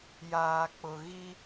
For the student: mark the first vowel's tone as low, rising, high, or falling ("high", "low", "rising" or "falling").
low